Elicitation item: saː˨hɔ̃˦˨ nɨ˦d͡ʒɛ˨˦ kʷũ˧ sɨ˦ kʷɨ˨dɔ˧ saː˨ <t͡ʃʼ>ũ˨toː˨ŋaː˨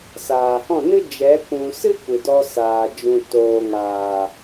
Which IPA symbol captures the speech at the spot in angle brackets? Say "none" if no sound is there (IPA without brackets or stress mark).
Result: d͡ʒ